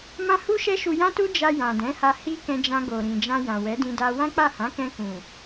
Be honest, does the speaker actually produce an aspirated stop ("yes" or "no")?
no